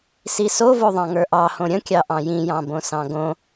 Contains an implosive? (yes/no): no